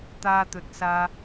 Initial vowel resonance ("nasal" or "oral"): oral